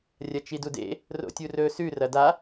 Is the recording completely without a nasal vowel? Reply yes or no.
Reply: yes